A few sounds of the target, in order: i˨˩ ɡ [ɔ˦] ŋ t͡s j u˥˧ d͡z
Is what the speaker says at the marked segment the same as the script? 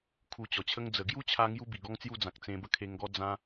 yes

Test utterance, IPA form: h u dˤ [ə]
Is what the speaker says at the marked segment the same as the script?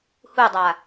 no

